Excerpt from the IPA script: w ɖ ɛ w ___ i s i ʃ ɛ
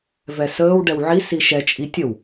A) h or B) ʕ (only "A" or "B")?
B